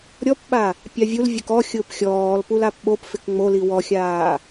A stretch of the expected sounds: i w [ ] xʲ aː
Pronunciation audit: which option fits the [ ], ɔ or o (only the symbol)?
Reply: ɔ